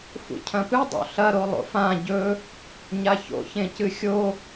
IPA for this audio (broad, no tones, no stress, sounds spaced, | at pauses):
f ṵ cʰ ɐ̃ p ɨ dˤ o̰ ɬ ɐ ɾ o lˠ o̰ f ã ɟ ɵ | ɲ a ç o̰ ç ẽ c ɨ xʲ o